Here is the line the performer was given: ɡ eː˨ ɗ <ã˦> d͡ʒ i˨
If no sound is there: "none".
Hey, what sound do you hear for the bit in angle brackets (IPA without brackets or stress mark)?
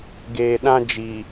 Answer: ã˦